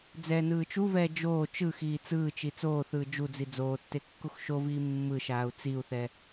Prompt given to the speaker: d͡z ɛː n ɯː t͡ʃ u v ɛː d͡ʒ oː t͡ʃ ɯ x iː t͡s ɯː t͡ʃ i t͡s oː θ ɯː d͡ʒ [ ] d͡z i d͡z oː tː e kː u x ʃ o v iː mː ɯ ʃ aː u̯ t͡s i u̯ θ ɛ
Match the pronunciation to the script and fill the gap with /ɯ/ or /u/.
u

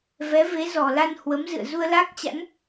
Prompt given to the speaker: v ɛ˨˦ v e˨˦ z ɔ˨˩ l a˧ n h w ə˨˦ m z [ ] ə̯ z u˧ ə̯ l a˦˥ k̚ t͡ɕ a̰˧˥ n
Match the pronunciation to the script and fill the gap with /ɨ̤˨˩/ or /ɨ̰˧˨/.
ɨ̰˧˨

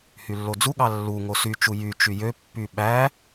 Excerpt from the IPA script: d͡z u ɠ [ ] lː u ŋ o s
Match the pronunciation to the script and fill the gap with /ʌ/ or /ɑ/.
ɑ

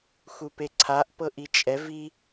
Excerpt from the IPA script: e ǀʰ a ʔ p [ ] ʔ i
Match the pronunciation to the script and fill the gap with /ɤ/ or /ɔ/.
ɤ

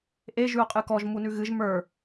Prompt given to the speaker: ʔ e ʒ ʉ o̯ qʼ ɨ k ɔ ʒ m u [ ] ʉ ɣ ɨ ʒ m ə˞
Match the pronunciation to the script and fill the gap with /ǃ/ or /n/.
n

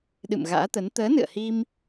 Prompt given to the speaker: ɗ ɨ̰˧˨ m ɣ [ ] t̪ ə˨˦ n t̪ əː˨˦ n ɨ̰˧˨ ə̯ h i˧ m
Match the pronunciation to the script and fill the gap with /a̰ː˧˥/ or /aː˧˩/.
a̰ː˧˥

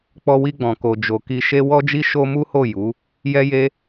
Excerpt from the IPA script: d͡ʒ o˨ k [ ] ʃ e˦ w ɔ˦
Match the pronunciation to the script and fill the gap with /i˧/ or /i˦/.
i˧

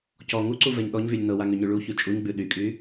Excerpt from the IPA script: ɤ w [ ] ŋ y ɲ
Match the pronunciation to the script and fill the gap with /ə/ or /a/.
a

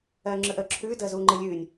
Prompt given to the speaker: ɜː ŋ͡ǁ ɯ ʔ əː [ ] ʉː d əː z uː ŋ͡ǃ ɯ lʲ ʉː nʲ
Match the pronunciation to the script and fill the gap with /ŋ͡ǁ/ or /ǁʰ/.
ǁʰ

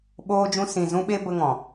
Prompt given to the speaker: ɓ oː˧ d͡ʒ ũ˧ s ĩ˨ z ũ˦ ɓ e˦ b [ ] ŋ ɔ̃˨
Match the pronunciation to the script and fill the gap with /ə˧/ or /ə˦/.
ə˧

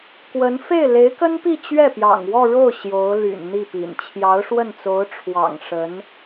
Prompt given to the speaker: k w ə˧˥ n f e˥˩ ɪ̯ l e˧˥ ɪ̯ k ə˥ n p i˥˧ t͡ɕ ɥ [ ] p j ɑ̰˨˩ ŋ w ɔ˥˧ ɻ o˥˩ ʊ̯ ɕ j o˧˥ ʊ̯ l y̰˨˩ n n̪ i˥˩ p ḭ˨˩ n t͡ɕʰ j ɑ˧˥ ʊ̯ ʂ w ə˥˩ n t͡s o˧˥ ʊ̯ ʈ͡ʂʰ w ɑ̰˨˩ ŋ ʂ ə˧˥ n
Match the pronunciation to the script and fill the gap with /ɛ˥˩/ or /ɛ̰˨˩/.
ɛ˥˩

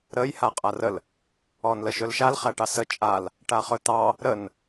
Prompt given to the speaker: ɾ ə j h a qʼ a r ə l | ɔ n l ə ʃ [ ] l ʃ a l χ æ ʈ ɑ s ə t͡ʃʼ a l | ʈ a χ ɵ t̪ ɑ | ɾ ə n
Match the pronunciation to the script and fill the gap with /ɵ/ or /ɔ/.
ɵ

